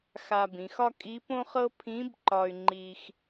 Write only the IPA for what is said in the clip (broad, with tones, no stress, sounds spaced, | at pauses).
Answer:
x a˧ b ĩ˩˧ x ɒ˥ kʼ i˧˥ p õ˥ χ ɤ˥ pʰ ĩ˧˥ b ǃ ɒ˧ y̯ ŋ͡ǃ i˧ x